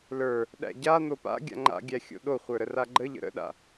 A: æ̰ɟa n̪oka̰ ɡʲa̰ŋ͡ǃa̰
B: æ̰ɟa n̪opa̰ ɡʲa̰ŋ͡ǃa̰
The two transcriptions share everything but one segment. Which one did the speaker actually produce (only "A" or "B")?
B